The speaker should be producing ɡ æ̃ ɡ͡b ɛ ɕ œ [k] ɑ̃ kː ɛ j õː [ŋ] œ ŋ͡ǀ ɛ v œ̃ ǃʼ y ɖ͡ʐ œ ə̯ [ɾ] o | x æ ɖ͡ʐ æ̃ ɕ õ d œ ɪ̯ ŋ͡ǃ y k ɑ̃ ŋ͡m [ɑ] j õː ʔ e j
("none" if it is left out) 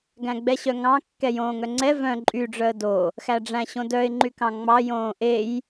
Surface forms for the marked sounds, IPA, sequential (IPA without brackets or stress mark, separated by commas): ŋ, ŋ, d, ɑ